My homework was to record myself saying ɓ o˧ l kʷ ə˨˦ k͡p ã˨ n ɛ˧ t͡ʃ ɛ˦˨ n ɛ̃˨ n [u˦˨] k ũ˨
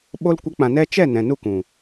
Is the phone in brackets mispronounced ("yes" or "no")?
no